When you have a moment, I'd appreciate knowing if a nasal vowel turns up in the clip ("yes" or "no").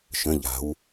yes